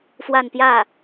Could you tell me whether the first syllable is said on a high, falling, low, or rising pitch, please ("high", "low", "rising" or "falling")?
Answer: falling